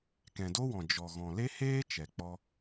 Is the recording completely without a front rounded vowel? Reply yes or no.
yes